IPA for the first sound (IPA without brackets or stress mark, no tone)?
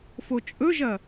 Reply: f